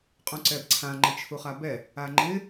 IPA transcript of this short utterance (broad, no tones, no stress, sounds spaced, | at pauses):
qʼ ũ ǀ ɛ b ǀʰ ã ŋ͡ǃ ɛ̃ t͡ʃʰ u χ a b ɛ | a ŋ͡ǃ ɪ